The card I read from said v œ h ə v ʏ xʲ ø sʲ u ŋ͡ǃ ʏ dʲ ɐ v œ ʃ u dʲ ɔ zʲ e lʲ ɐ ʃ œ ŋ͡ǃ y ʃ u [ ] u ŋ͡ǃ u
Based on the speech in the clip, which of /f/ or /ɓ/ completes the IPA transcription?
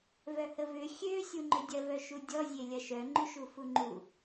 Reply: f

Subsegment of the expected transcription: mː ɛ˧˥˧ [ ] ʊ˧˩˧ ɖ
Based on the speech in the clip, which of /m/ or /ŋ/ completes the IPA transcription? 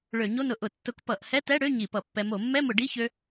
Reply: m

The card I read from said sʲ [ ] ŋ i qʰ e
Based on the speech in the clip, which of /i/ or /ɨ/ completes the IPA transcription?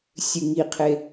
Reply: ɨ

